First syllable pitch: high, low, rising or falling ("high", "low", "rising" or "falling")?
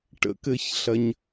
low